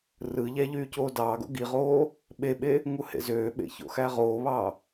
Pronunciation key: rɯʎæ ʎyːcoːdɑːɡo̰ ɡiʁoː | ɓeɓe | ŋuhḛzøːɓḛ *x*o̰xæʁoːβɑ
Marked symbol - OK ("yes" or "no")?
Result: no